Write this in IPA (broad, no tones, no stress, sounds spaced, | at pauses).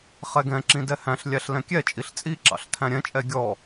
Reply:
χ ɛ ɡ ɛ̃ ǁ ĩ d ɛ h æ̃ ɬ lʲ æ ɬ l ɛ̃ kʲ ɛ t͡ʃʼ i ɬ t͡sʼ i ǁ ɑ̰ ɬ tʰ æ̃ ɾʲ ɛ̃ t͡ʃʼ ɛ ɡʲ ɔ